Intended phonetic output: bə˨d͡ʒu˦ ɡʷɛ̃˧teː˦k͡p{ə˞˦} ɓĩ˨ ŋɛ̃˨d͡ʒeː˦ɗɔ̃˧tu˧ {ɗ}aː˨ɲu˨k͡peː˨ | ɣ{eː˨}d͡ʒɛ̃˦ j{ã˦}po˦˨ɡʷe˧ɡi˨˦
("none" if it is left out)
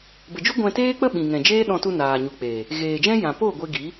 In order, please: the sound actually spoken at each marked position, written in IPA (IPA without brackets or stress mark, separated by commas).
ə˦, n, eː˨, ã˨